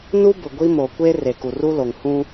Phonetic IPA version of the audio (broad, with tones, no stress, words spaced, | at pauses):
nu˦bʊ˨ɡʷi˦ mo˨kʷe˦ re˨ku˨ru˦lo˨ŋ hũ˦